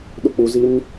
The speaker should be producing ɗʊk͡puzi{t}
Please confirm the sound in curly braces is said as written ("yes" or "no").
no